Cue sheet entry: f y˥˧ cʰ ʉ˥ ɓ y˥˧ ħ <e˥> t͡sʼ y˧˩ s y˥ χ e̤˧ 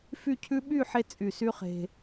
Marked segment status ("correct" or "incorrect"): correct